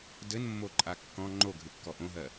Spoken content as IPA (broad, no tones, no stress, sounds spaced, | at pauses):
d ɘ n mː o ǃʼ a kː ɔ̃ ŋ͡ǃ o ɡʱ ɨ kː ɔ ʔ õ ɦ ɜ